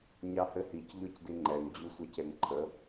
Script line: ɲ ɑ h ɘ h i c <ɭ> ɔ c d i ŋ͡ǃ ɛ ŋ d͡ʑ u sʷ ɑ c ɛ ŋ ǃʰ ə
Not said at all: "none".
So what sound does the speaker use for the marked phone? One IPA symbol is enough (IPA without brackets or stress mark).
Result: ʎ